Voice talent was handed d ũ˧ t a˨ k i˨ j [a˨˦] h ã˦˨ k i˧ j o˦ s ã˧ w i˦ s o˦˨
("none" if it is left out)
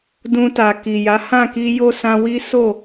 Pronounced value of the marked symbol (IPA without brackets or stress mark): a˨˦